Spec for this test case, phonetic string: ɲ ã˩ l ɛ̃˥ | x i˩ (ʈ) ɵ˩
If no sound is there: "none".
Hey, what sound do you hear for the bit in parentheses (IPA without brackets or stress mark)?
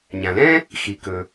k